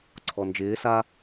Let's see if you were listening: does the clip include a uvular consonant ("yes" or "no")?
no